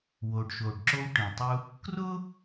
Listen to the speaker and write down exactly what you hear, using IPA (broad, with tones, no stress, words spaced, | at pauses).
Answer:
wo˩ɖʃo˩ɖǁo˧w ʈĩ˩tˤu˧ | krʊ˥